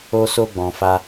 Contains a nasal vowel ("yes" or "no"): yes